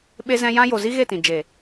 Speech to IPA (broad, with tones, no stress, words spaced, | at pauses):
ɓe˧zɛ̃˧ jã˧jo˨zi˧ ɣe˦˨tĩ˨ d͡ʒe˨